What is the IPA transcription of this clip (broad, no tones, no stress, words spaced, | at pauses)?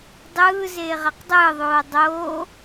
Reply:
dˤɯː zeːʁaqdˤɯːðˤoː dˤoː